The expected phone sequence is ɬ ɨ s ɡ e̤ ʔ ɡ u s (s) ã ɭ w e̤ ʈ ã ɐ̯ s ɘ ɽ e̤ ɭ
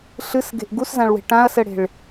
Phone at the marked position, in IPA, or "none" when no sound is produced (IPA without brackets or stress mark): z